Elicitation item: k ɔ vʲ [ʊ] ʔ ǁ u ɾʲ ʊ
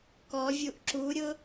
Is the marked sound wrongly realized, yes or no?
yes